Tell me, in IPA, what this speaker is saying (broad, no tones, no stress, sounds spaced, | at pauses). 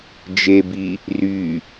d͡ʒ e b i | r y